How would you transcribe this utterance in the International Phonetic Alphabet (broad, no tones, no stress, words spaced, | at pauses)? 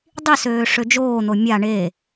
dˤisøː ʂød͡ʒoːn̪o mʲa ɳe